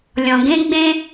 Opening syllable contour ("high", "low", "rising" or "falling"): low